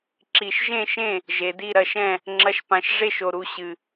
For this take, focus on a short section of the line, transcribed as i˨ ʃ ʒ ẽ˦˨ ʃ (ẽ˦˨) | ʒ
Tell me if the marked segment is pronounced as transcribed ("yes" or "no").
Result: yes